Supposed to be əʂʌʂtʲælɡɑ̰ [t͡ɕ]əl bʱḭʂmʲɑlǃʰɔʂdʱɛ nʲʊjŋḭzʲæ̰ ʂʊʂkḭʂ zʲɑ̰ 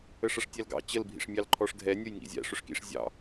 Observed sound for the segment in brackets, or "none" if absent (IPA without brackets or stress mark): t͡ɕ